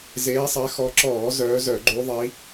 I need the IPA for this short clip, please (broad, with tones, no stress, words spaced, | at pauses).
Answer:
zeː˨˦sˤɛ˨˦xɔ˨˦ǁɔː˧˩˧ zœː˨˦zœ˧˩˧ ɡ͡ǃu˨˦ðˤi˨˦